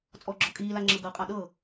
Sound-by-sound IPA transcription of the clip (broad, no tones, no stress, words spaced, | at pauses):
t͡sʼɔɡ͡ǁɔ kʼiːlaŋ͡ǁɤ ɡɤqʼa ɗɤ